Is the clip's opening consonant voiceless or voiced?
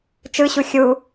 voiceless